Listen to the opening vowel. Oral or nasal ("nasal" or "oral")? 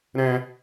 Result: nasal